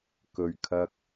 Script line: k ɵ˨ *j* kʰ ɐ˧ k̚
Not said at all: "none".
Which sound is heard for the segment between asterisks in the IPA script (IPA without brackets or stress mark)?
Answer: ɥ